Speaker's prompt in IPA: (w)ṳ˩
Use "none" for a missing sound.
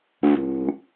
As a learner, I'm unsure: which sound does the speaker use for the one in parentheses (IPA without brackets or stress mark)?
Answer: β